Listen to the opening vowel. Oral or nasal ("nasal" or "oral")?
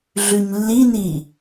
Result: oral